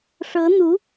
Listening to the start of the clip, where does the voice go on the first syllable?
rising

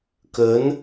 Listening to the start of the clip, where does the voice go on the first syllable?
rising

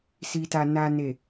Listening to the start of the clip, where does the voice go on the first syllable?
low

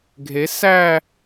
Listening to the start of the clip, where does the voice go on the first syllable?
rising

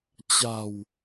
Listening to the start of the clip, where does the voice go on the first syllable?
low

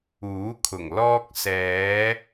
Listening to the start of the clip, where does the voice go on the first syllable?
rising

